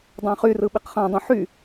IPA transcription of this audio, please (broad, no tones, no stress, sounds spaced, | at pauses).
dˤ ɑ̃ χ y r ɯ ɓ i q χ ɑ̃ dˤ ũ ħ y